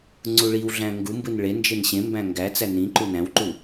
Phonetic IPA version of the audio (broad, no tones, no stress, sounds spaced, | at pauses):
ŋ͡ǀ u ɭ i w ɮ æ̃ ŋ ɡ u m b ɯ n ɭ e n d͡ʒ e n ɕ ẽ m b æ̃ ŋ ɡ æ t͡s æ n ĩ ǃ u n æ̃ w ǃ u